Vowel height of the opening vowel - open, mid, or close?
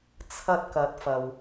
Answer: open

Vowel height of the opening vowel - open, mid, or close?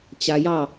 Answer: open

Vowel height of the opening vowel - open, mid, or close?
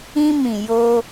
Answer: close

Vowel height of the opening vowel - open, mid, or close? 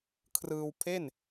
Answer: close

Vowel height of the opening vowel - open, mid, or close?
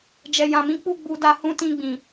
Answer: mid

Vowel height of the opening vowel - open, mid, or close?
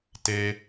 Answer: mid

